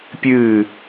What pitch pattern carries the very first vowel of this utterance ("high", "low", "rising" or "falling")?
falling